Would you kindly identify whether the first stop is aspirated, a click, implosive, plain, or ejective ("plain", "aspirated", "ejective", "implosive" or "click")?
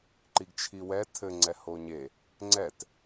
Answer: click